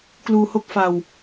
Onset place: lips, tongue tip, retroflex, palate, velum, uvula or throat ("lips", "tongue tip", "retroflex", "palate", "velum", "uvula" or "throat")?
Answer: velum